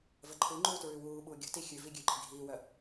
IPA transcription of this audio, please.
v ə ǃʰ ɯ ŋ͡ǃ uː t ɹ ʉ w uː ɓ uː ɡʲ ə̤ t i xʲ ʉ v i ɡʲ ʉ ǃ i̤ ɡʱ iː w œ

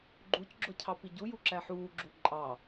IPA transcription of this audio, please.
ɡ͡ǃ u c ɡ͡ǁ ʊ cʰ ɑ p i ɟ u j u ǁ æ ħ uː ɡ͡ǁ u ǃʼ ɑ

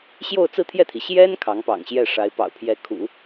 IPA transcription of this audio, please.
ɕ j o˥˧ ʊ̯ t͡s ɹ̩˥˧ t̪ʰ j ɛ˥˩ t̪ʰ i˩ ɕ j ɛ˥ n kʰ ɑ˧˥ ŋ p ɑ̰˨˩ ŋ ɕ j ɛ˥˩ ʂ a˧˥ ɪ̯ p ɑ̰˨˩ ʊ̯ pʰ j ɛ˧˥ kʰ ṵ˨˩˦

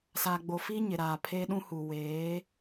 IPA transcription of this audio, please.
s aː˨ ɡ͡b o˨ f iː˦ ɲ ɪ˨ ɾ aː˨ pʰ eː˦ ɗ ũ˦ h uː˨ w eː˨˦

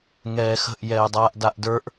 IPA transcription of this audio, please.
ŋ ɛː x ə̤ ʔ j ɛː dˤ aː ʔ d a ʔ d ə˞ ʔ

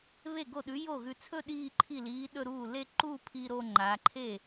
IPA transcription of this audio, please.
β e˥˩ ɡ o˥˩ ɗ ʉ˨˥ j o˥˩ ɣ ʉ˧ t͡sʰ ɵ˥˧ ɗ iː˥˧ ǃʰ i˥˩ l iː˨˥ ɗ ɵ˥˧ ɾ uː˥˩ l e˥˧ ǃ uː˥˧ pʰ i˧ ɾ oː˧ ŋ͡ǃ aː˩˧ ǃʰ e˥˩

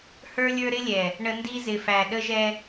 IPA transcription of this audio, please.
h ə˞˦ lʲ ə˞˦ ɾ ɪ˦ lʲ ɛ˨ | ɳ ə˦ n d i˦ z ɪ˨ f æ˨ ɗ ə˦ ʒ ɛ˦

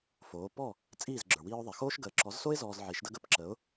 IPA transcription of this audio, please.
f oː˩˥ p ɔ˥˩ | t͡sʼ iː˥˩ z ɡ͡ǁ ə˞˩ w iː˧ ʊ̯ ðˤ ɛ˩ x oː˥ ʃ ɡ əː˩˥ ǁ ɔ˩˥ z s o˥ ɪ̯ z ɔː˧ z ʕ i˩˥ ʃ d ə˥ ɡ ə˧ p ǁ ə˩˥ ʊ̯

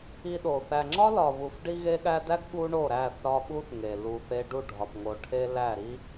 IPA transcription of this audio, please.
i˧ ɗ o˨ θ æ˨ ŋ͡ǁ ɒ˦ l ɒ˨ β u˨ f ɖ i˧ ɣ e˧ ɠ æ˧ d æ˦ ɡ ɓ u˦ ɳ o˦˨ ɾ æ˦˨ θ ɾ ɒ˧ ɓ u˦ θ ŋ e˨ l u˨ θ e˧ ɖ u˦˨ ɖʱ ɒ˨ p ŋ o˨ ʈʰ e˧ l æ˦˨ ɾ i˦

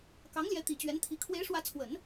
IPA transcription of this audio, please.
k ɑ˧˥ ŋ l j ɛ˧˥ t̪ i˨˩ t͡ɕ ɥ ɛ˧˥ n t̪ʰ i˧˥ kʰ w e˧˥ ɪ̯ ʂ w ä˧˥ t͡sʰ w ə˨˩˦ n

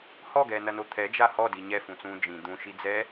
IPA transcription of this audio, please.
h ɔ ɡ ɛː n ɐ n o t̪ʰ ɛ d͡ʒ a h ɔ d i ɲ ɛ f ũ t͡s ũː d͡ʒ ĩ d̪ ũ ʃ i d͡z ɛ

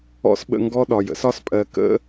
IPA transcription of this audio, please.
ɔ̰˦ s ɓ ə̰˧ ŋ ɡ ɔ˦ ɗ ɒ˨ j ə̰˦ s ɒ˦ s pʼ ɜ˨ k ə̰˦

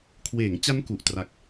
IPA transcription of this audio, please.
kʰ w eː˩˦ ŋ t͡ɕ a˦˥ n k u˨˩ ʔ t r a˨˩ k̚

